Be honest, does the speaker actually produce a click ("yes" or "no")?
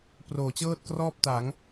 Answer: no